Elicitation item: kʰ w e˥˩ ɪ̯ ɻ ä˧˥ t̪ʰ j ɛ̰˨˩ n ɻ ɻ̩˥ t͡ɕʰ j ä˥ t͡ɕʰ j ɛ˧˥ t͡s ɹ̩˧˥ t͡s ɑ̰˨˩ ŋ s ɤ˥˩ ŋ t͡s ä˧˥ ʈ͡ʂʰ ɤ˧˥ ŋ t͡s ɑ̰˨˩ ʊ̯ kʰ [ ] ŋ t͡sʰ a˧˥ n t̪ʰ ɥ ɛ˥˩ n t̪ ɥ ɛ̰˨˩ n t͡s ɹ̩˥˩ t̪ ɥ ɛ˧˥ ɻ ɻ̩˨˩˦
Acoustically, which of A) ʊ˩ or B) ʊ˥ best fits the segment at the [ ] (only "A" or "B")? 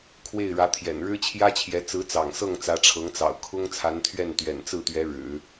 B